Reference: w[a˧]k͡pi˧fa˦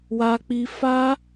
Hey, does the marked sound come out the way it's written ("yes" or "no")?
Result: yes